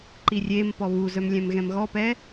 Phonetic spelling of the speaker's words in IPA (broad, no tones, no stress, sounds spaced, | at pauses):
ǃ i rʲ e m p ɔ β u z œ m lʲ ɛ̃ m ɣ ɛ̃ m ɣ ɔ p ɛ